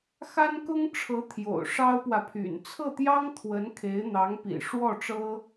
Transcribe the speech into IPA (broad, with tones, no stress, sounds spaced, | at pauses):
x a˥ n k ʊ˥ ŋ ʈ͡ʂʰ ɤ˧˥ t̪ʰ j o̰˨˩ ʊ̯ ʂ ɑ˥ ʊ̯ p w ä˨ pʰ y̰˨˩ n t͡sʰ ɤ˥˩ t̪ j ɑ˥ ŋ t̪ʰ w ə˧˥ n kʰ e˧˥ ɪ̯ n̪ ɑ˧˥ ŋ p ḭ˨˩ ʂ w ɔ˥˩ ʈ͡ʂ ɤ˥